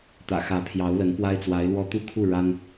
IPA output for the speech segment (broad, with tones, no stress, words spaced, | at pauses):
t̪ä̰˨˩xä˧˥pʰjɑ˧˥ʊ̯lə˧˥n pwa˥ɪ̯t͡swa˧˥ɪ̯lwɔ˥ t̪u˥˧kʰu˥˩ ɻa˥n